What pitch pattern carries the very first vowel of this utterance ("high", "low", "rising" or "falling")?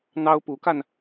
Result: high